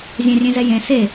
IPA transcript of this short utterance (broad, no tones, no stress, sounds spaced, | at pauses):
zʲ ɛ̃ rʲ ẽ z ɛ j ẽ s e